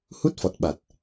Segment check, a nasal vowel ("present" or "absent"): absent